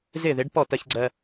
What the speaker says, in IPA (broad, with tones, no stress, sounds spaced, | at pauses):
z ɪ˥˩ ð ɪ˩˥ ɖ p ɔ˥˩ t ɜ˧ ç ɡ͡ǀ ɜ˧